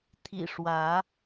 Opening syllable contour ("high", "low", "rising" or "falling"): low